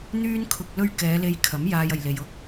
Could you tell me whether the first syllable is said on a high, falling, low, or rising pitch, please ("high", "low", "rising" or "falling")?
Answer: high